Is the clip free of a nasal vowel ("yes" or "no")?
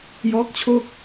yes